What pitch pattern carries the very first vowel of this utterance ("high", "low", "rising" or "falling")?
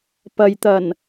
low